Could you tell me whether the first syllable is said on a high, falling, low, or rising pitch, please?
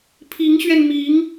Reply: rising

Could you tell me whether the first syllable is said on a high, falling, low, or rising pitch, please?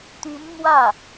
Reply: rising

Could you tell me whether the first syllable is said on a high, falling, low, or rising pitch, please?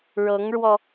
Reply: rising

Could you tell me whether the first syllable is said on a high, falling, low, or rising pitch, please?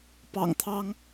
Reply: low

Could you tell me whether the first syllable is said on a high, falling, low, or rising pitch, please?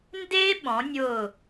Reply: high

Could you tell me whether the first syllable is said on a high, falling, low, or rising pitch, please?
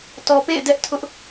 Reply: low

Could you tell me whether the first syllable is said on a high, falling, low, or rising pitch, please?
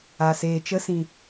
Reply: low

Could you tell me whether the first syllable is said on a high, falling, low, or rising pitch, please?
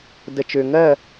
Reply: low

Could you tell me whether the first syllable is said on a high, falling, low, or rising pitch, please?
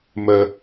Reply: high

